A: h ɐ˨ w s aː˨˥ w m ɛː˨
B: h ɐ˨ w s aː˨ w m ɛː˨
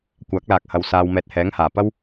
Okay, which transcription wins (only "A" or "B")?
B